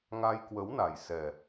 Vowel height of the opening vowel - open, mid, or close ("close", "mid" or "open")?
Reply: open